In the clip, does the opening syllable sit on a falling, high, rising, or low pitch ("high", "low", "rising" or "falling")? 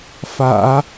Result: low